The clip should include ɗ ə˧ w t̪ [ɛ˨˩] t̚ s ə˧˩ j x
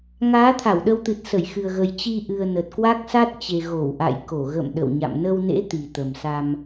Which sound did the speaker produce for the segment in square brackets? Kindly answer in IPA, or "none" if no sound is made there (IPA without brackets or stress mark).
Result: ɨ˨˩